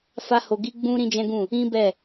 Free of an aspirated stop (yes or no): yes